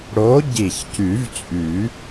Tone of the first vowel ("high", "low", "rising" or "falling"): rising